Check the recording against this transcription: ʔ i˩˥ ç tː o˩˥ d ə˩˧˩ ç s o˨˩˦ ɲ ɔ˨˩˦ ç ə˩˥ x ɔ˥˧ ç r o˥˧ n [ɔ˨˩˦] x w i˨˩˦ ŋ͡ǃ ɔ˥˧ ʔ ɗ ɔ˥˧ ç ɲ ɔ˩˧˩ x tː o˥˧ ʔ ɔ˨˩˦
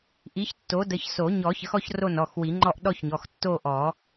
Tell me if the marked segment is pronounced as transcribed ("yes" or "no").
no